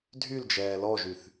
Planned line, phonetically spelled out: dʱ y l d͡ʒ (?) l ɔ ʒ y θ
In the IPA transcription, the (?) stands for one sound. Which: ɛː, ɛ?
ɛː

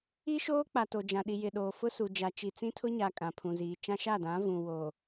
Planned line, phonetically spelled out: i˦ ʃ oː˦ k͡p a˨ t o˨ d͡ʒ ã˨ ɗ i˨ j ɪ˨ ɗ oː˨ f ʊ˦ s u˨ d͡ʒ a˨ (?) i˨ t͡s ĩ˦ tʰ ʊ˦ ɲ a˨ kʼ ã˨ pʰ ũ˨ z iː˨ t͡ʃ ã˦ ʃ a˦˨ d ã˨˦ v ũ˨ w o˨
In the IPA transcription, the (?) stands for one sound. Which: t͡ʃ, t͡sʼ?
t͡ʃ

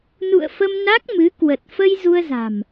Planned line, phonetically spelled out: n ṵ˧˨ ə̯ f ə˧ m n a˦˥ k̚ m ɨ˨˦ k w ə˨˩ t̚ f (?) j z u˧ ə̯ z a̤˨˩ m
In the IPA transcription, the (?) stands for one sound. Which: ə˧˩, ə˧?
ə˧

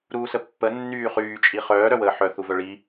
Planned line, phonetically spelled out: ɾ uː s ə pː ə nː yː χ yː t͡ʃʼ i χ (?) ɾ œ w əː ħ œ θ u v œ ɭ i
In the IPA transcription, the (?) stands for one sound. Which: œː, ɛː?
œː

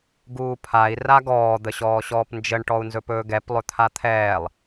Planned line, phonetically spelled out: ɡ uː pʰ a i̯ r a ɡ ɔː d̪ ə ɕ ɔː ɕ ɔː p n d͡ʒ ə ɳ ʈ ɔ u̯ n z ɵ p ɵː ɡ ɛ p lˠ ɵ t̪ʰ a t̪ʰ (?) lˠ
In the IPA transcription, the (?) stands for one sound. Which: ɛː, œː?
ɛː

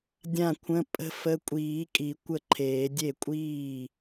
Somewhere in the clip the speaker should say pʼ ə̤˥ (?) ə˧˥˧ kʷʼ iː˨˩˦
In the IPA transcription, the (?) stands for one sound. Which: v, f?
f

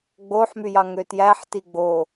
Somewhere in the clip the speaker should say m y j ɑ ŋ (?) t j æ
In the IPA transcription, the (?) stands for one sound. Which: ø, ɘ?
ø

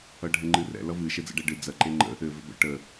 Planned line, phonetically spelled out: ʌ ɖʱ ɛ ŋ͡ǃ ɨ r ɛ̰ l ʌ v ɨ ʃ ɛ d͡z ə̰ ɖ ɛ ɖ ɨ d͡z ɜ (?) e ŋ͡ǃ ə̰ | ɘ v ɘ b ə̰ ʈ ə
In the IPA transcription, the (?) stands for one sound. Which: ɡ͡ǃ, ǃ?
ǃ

